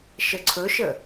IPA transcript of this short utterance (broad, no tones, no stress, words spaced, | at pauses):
ʃəǀʰɵʃə